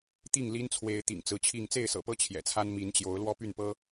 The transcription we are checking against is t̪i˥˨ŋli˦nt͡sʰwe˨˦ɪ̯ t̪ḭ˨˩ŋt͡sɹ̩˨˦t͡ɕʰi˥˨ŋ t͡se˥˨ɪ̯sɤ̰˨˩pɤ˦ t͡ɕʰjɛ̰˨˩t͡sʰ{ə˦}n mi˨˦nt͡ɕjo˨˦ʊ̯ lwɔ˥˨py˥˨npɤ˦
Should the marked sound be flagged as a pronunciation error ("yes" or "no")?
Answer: yes